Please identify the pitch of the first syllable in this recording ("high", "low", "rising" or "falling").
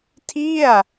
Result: falling